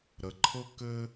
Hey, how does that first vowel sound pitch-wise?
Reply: low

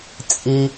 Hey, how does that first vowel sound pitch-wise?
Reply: low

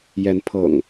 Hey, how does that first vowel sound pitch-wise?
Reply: rising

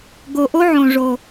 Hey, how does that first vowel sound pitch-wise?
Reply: low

